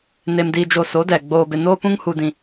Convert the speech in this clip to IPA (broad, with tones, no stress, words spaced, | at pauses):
ne˨mdiː˨ d͡ʒo˨so˨˦dɛ˨ ɡ͡boː˨bɪ˨ noː˦pũ˦ŋ hu˦dĩ˦